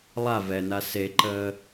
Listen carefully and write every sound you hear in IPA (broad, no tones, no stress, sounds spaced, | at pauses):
lˠ a v ɛ n a s e ǃ əː